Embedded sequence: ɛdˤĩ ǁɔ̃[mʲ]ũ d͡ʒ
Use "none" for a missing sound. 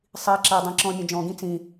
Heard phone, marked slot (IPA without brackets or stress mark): mʲ